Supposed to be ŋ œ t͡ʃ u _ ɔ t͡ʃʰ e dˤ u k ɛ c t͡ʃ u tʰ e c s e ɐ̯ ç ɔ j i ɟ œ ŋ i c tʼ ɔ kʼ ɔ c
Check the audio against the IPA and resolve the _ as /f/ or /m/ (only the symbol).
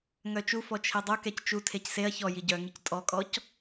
f